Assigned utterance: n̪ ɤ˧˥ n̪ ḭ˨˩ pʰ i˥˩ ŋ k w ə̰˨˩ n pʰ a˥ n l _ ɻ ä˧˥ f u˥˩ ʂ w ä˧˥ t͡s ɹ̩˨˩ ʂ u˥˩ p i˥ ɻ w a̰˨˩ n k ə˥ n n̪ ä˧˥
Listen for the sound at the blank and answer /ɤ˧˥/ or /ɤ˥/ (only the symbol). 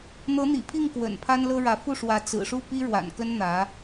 ɤ˥